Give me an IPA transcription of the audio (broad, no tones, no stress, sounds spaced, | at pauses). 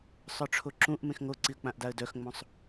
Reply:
sˤ œ ʈ͡ʂʰ o ǁ ũ ʔ m ẽ x ŋ o ǀ i ə̯ k͡p ã ʔ d a ə̯ d œ x ŋ͡m õ sˤ